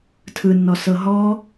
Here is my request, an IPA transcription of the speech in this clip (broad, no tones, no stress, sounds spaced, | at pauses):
tʰ ɯ nː ɔ s ɤ ɦ ɔ